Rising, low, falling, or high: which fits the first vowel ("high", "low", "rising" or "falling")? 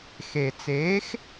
low